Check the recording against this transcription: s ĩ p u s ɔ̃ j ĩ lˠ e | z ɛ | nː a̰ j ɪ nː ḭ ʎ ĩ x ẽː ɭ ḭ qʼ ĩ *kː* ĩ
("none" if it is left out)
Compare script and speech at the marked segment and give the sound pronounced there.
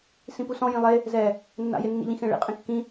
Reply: kː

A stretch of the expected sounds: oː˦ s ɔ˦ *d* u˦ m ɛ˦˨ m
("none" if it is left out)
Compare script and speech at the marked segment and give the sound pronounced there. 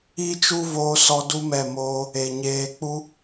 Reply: d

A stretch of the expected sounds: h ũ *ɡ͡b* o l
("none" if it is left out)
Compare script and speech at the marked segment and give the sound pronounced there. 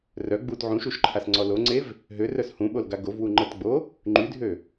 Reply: ɓ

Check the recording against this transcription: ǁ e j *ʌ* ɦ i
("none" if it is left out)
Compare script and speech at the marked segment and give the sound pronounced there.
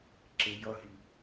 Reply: ʌ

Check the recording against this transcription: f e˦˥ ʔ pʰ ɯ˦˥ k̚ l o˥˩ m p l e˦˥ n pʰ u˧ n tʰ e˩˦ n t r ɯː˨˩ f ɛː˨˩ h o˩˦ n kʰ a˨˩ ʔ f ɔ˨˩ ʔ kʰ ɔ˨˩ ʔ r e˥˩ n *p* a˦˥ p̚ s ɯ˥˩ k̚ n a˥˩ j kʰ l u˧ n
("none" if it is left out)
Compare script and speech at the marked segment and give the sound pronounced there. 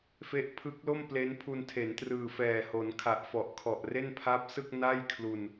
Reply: pʰ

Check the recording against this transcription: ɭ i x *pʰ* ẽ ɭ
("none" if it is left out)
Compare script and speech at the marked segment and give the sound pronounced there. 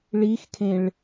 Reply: kʰ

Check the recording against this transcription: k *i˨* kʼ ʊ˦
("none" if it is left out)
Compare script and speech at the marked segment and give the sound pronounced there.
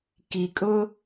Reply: i˨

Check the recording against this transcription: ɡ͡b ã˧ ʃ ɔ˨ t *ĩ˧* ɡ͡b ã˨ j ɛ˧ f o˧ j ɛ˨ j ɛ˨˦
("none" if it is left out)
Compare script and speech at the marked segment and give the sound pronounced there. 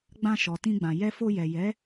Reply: ĩ˧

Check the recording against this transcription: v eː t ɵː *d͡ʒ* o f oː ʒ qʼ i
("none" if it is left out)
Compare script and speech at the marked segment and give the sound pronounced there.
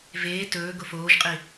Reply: ɡ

